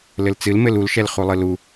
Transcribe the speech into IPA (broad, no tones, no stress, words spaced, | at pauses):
lɘlt͡sɨlmɘl ulʃɛl χulˠɨlu